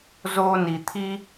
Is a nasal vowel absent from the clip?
yes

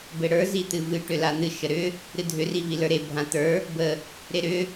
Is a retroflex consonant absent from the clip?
no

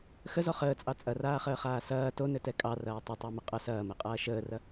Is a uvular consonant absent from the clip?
no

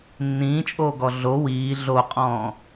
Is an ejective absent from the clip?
no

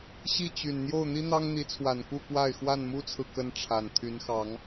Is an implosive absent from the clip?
yes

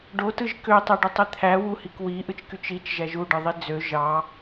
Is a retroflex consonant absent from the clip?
no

